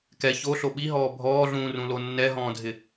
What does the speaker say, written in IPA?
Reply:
k ɛ ç o ɬ o ɓ i ɦ ɔː bʱ ɔː ɮ ũː r ũ l o nː ɛ ɦ ɔ̃ː dʱ ɪ

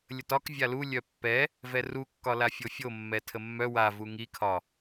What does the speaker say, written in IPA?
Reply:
lʲ ə t ɒ k vʲ a l u lʲ œ pː ɛ | v ɛ r u kː ɒ l a fʲ o fʲ o mː ɛ tʰ ə mː œ w a v u ŋ i kʰ ɒ

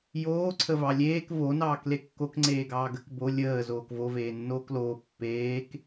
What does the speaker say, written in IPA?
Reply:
j oː ǀʰ ə v ɑ lʲ eː k v o n ɑː k l e kː o k ŋ͡ǀ eː ɡ ɑː ɡ ə k b o lʲ əː z oː k v o v eː nː oː k l oː pː eː k

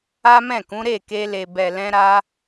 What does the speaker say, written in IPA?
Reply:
a˦ m ɛ̃˦˨ k ũ˨˦ ɾ e˦˨ k e˧ l e˨ b ɛ˨ l ɛ̃˧ ɾ a˧

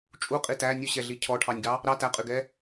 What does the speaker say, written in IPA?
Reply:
t͡ʃʼ u qʼ i t æ nʲ u ɕ ɛ ɮ i cʰ ɔ ʈʰ ɑ nʲ ɡ ɑ | ɾ ɑ t æ qʼ y ɡ ɛ

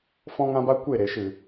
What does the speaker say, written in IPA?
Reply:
f ɔ̃˦ ŋ ã˦ b a˦ kʷ e˦˨ ɾ e˨ ʃ ɨ˨

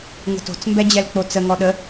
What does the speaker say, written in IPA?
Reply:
ŋ ə̤ t o̤ t͡s m b ɛ d͡ʑ ɛ l k͡p o t͡s ə ŋ ɔ ɗ ə

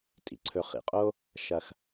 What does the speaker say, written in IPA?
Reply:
tʼ ḭ˩ ǀʰ ɵ˧ χ ḭ˩ qʼ o˥ | ʃ ɐ˧ x

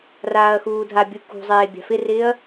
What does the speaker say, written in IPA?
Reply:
r aː ɐ̯ x uː dʱ a bʲ u k ṳ zˤ eː bʲ a̤ f ɪ r ɪː ɐ̯

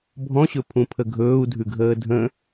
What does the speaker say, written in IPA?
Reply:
bʱ ɔ̃ ɕ ɵ pʰ ũ pʰ ə ɡʱ ɵː u̯ dʱ ʉ ɡʱ əː dʱ ə̃

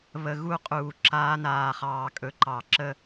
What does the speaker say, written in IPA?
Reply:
β ə˨ ɣ u˦˨ qʼ uː˨ ǁ aː˧ n aː˨ χ ɑː˨ kʼ ɵ˨˦ ǃ ɑ˨ ǁ ə˦

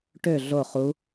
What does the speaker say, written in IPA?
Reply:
ʈ ø ɮ o χ u

